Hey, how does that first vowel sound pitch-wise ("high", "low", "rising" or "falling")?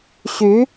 rising